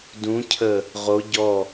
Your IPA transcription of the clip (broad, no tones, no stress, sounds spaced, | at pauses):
d ũ cʰ ə | ʁ o ɟ ɔ